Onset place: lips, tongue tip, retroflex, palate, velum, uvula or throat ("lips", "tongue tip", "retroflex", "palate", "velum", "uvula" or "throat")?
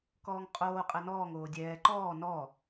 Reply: velum